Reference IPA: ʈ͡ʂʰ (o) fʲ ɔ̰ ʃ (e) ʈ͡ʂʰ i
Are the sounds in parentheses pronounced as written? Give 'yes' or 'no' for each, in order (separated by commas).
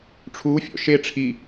no, yes